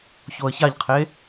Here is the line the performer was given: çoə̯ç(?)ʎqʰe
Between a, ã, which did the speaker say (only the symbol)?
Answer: a